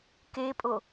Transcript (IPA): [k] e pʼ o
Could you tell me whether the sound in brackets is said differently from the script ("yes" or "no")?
no